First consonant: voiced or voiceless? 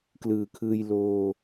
voiceless